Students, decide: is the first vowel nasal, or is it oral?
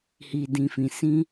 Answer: oral